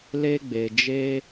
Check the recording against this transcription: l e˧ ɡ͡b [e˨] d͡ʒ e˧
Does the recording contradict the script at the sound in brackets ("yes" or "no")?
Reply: no